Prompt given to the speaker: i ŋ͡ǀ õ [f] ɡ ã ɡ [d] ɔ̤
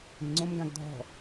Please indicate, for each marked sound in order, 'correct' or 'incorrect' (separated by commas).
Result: incorrect, incorrect